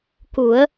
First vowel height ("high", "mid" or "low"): high